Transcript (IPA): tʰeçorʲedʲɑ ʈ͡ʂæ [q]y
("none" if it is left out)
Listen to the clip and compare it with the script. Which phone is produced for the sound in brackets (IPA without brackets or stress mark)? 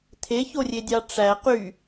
q